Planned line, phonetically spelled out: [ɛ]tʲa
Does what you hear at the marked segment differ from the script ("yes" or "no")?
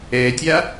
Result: no